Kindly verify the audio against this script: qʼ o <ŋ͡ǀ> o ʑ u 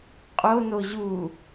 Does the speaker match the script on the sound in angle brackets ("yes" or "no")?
no